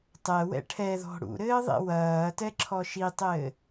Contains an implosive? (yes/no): no